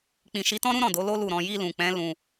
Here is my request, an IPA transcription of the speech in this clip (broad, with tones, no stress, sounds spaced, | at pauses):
k͡p ĩ˨ ʃ i˨˦ t ɔ̃˦ ɾ ũ˦ ɾ ɔ̃˦˨ d o˨˦ l o˦ l u˦˨ ɾ ɔ̃˧ j i˧ l ũ˨ k͡p ɛ̃˨˦ l ũ˧